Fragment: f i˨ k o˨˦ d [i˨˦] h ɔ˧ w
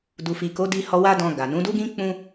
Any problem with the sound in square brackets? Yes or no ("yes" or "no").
yes